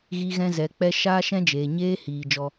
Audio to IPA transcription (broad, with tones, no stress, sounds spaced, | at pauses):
ɣ i˦ ɣ ɛ̃˦ z ɛ˨˦ k͡p ɛ˦ ʃ aː˦ ʃ ɛ̃˦ d͡ʒ eː˨ ɲ eː˦ h iː˨ d͡ʒ ɔ˧